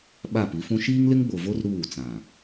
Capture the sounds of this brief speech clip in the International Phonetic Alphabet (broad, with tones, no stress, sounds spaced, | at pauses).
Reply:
ɓ a˦˨ p i˨˦ f ũ˦ ʃ iː˦ ŋ l ɪ˦ ŋ ɡ͡b o˨ v o˦ r ɾ uː˦˨ t͡s ã˨